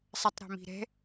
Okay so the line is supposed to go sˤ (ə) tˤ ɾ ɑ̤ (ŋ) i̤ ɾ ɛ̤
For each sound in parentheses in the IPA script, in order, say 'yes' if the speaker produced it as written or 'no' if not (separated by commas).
yes, no